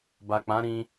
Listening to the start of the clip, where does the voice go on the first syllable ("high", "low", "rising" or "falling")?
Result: low